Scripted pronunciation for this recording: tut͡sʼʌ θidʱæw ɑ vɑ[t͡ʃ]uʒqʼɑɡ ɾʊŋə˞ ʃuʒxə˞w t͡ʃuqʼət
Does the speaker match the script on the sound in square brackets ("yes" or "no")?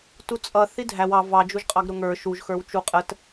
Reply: no